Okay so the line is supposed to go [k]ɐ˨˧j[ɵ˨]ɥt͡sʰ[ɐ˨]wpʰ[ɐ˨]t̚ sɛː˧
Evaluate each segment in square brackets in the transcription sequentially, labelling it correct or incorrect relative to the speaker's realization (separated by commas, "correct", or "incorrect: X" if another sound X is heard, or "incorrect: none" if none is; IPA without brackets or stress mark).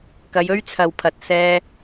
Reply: correct, incorrect: ɵ˥, correct, correct